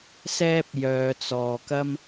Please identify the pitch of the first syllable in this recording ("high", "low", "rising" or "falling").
high